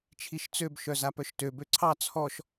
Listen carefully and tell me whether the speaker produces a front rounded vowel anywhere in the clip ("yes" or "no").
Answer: yes